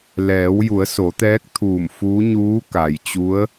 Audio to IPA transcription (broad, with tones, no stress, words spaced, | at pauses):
lɛː˩˧wju˩˧ə̯so˩˧t̪ɛː˧˥k̚ t̪ʰuː˧˩mfuː˧˥ ɲuː˧˥ka˩jt͡ɕu˧˥ə̯